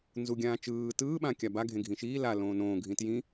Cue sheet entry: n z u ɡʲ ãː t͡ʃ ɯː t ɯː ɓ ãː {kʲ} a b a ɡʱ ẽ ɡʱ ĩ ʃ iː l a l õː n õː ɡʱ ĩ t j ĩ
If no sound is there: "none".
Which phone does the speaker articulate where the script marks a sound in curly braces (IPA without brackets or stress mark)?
kʲ